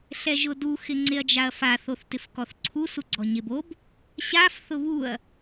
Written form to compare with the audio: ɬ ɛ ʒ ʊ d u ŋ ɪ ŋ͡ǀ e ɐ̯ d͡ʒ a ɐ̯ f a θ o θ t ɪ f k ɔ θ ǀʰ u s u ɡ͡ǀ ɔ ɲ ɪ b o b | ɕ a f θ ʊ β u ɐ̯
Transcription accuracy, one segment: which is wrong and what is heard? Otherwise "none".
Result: ŋ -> x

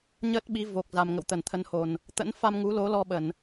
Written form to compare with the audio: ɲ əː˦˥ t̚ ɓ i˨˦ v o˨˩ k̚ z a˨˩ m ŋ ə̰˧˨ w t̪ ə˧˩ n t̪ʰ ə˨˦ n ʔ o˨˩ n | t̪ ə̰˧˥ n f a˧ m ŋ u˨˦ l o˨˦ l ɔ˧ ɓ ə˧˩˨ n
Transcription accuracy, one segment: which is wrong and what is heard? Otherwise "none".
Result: ʔ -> h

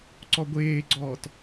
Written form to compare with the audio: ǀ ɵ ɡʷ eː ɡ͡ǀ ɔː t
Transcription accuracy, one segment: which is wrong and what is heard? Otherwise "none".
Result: ɵ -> ɔ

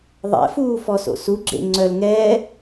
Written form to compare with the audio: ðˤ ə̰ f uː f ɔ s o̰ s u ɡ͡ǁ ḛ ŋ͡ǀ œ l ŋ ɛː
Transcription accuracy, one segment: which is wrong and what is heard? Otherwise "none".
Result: ə̰ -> ɛ̰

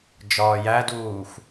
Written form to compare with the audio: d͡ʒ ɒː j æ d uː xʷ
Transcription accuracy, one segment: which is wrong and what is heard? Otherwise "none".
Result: none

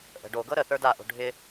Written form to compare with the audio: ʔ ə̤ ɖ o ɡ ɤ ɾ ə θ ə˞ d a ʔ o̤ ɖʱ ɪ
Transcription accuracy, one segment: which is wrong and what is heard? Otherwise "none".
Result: none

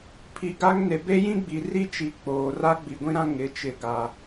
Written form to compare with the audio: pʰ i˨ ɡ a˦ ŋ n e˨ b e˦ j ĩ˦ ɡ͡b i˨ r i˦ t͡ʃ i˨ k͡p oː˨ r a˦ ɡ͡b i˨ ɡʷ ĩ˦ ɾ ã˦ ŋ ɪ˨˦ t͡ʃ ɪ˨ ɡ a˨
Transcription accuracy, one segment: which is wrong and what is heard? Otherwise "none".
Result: none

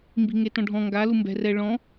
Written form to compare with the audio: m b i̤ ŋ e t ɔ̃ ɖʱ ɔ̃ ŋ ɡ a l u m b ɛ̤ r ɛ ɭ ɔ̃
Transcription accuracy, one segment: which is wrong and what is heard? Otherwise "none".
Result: none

